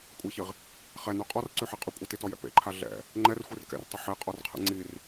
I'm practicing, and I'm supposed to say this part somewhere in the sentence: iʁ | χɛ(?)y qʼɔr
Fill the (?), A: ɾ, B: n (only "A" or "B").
B